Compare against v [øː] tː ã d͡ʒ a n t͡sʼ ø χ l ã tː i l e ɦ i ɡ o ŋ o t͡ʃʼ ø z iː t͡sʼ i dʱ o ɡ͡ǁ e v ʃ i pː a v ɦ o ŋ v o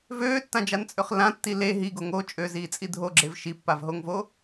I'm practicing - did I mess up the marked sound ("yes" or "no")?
no